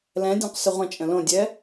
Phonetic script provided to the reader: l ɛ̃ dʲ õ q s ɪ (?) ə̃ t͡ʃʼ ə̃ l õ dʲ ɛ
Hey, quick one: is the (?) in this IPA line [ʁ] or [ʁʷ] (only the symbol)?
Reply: ʁʷ